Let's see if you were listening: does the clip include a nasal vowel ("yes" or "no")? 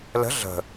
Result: no